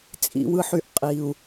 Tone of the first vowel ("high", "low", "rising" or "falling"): low